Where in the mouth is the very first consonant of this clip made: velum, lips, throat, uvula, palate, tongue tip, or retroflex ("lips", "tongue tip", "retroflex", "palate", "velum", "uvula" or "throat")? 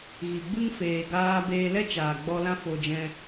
velum